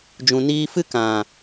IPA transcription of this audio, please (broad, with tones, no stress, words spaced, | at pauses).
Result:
d͡ʒũ˨niː˧fɨ˦ kã˨